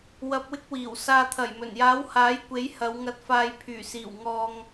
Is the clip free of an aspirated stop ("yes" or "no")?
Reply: no